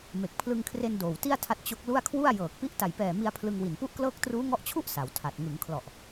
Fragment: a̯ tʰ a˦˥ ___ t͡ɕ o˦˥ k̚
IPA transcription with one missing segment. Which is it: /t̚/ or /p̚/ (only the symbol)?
t̚